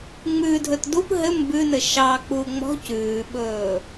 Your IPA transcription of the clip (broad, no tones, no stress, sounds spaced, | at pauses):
ŋ͡m ʉ dʱ ɵ t d u p ɦ ɘ m b ʉ n ɘ ʃ ɑ k͡p u ŋ͡m ɔ̤ c ʉː ɓ ɵː